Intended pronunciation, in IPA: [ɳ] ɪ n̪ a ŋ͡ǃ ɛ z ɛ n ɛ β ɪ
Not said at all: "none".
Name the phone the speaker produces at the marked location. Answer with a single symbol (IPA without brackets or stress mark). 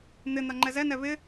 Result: n̪